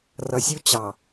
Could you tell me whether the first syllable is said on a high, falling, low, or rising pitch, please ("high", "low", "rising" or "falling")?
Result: low